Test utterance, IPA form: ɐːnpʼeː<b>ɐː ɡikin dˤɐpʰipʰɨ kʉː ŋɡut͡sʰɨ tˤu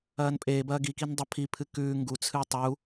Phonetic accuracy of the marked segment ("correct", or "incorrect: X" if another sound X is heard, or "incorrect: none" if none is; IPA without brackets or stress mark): correct